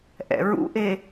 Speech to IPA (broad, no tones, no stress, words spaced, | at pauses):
ʔɛ̰ɹṵʔe